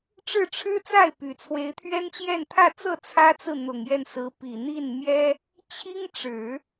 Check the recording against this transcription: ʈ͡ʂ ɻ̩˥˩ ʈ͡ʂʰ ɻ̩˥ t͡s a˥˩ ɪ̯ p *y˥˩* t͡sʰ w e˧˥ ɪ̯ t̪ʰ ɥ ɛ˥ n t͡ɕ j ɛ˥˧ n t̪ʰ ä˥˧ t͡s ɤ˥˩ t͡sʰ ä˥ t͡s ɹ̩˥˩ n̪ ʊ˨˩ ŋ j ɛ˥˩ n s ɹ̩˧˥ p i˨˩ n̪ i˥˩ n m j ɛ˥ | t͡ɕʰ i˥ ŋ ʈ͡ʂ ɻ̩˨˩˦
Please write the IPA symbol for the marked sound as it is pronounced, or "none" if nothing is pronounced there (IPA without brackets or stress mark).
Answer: y˨˩